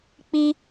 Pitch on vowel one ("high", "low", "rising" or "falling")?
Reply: high